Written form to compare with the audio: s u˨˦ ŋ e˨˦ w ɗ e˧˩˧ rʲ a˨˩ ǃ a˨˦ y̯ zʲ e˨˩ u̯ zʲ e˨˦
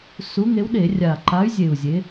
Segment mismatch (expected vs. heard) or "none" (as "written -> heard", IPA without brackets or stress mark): none